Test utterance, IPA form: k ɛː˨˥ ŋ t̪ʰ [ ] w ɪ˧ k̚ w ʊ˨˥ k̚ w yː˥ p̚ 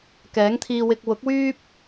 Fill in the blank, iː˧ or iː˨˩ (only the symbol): iː˧